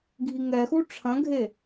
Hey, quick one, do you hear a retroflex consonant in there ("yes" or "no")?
yes